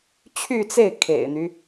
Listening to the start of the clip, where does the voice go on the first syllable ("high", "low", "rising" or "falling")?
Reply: falling